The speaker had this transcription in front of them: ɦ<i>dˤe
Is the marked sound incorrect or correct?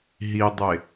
correct